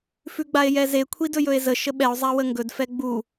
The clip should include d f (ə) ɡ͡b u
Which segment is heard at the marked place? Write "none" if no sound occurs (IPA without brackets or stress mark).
ɛ